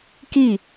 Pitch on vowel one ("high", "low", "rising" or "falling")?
falling